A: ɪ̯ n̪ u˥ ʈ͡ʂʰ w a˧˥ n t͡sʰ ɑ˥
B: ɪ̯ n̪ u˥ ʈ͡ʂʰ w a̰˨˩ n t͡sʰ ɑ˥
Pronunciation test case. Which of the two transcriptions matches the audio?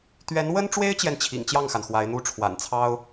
B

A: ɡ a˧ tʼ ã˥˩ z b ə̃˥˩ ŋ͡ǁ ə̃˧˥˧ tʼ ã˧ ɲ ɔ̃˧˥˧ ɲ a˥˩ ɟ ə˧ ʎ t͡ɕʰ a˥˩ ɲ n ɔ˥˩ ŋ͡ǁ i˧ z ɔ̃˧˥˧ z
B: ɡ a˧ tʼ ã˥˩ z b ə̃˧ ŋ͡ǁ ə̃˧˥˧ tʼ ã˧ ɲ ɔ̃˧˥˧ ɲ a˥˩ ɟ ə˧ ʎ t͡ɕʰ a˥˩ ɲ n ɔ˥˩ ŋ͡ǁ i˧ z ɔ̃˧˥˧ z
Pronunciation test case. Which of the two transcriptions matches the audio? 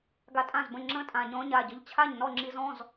A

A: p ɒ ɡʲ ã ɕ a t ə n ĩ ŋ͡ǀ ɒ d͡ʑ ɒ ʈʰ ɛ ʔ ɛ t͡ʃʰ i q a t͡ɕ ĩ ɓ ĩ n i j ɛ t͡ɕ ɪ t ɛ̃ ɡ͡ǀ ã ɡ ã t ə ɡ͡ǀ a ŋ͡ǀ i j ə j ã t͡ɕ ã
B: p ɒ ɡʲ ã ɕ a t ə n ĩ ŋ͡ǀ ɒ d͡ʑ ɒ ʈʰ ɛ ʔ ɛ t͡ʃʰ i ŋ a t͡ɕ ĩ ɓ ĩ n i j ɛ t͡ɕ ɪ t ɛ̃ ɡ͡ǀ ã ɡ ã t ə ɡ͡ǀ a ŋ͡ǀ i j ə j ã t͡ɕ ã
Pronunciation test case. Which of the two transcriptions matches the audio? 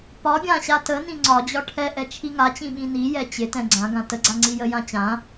B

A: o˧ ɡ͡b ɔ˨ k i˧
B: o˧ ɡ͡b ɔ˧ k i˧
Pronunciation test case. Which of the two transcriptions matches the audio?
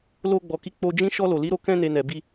A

